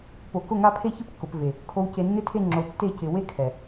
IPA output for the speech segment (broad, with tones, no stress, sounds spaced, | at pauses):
p o˨ k ʊ˦˨ ŋ a˦ pʰ e˦ ç ɪ˦ p kː ʊ˨ p v e˨ | kʰ o˨ w c e˨ nː ɪ˦˨ tʰ e˦˨ ŋ͡ǁ o˨ tː e˦˨ c ɪ˨ w e˦ kʰ ɛ˨